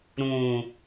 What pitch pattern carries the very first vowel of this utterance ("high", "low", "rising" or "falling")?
low